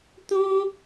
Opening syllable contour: high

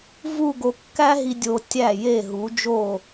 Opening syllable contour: falling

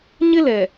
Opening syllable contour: high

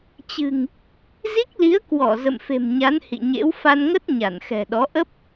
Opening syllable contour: low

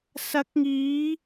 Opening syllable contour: rising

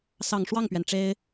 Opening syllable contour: low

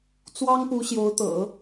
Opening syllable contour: high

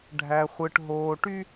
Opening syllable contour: low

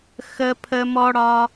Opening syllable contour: high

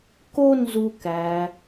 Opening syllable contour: high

